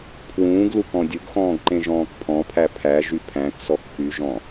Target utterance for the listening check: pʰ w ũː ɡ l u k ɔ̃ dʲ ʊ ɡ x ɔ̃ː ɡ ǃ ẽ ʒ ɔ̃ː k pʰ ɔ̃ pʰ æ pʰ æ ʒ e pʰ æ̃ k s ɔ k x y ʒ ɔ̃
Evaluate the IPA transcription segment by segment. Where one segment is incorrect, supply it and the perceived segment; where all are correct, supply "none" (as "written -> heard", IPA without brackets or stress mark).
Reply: e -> y